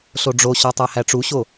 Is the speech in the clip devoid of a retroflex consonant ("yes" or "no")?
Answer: no